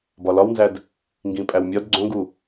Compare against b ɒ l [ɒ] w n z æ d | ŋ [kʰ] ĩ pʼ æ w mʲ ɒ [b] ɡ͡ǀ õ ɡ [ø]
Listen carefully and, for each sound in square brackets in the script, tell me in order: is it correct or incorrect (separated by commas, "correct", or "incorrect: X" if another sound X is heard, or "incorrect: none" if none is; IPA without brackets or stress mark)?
correct, incorrect: ɡ, incorrect: d, incorrect: u